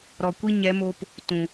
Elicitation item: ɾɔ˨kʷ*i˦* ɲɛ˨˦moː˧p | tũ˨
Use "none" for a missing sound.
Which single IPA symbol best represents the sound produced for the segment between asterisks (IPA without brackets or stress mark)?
i˦